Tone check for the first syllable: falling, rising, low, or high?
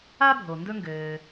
high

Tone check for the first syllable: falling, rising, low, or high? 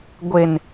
low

